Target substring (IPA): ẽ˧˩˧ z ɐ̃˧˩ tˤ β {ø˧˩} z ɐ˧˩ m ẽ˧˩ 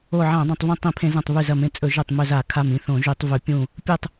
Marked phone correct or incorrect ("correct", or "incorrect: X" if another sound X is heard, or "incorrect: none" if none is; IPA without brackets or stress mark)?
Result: incorrect: ʉ˧˩